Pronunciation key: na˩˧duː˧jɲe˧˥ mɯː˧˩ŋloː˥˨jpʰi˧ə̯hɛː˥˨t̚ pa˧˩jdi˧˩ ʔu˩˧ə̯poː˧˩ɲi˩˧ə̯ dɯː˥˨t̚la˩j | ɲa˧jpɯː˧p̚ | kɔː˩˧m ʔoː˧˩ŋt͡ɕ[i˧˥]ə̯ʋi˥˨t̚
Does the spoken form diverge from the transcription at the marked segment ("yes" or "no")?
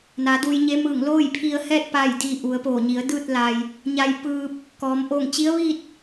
no